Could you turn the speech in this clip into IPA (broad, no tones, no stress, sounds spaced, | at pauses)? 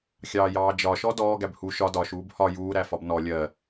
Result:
xʲ ɑː j ɑː d͡ʒ ɒ ʃ ɔ d ɔː ɡ æ b h u ʃ ɒ d ɒ ʃ uː b h ɒ j uː ɾ æ f ɒ b n ɔ lʲ ɜ